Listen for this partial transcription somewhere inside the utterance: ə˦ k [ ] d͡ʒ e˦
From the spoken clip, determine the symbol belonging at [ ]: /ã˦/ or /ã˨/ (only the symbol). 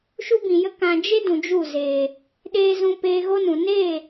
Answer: ã˨